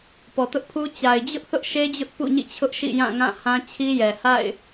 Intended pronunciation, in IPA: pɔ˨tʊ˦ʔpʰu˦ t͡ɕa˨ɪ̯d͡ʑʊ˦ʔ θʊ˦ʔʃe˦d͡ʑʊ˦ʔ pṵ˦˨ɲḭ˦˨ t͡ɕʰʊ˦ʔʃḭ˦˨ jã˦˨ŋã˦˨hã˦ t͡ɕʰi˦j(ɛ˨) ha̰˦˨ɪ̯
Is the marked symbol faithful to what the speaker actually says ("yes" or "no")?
yes